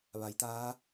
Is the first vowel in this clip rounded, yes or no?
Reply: no